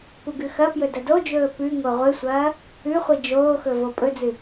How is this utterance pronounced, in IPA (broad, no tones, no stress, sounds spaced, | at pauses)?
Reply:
p u ɡ ʉ x ɐ p j ɵ d ɐ d o d͡ʒ ɵː p ʉ ŋ o ʁʷ ɨ sʷ ɐː | ʉ χʷ i d͡ʒ oː x ɵ v o pʼ ɵ d͡z ɨ